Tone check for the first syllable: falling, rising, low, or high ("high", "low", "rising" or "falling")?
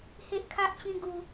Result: high